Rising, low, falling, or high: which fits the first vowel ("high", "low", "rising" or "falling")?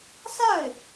falling